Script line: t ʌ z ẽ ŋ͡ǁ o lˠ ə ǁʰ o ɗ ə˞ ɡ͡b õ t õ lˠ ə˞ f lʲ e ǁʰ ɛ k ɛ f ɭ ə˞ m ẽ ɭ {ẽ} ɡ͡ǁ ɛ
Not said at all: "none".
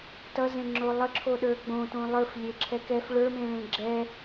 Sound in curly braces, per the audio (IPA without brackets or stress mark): ẽ